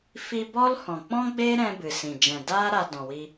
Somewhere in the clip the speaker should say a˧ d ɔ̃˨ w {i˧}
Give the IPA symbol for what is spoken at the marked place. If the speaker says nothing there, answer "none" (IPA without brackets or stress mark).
i˧